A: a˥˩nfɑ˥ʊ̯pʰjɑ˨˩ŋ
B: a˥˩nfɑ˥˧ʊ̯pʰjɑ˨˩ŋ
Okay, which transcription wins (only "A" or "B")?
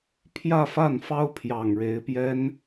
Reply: A